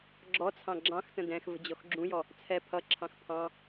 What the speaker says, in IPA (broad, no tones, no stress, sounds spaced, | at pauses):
ɡ͡ǁ ɔ t͡sʰ ɑ̃ ɡ͡ǁ ɑ̃ x t ə̃ d ɛ̃ x v ə̤ d͡ʑ ɔ x ɡ͡ǁ ũ j ɔ | t͡sʰ ɛ pʰ ʌ ǁʰ ɑ̃ x pʰ ɑ̃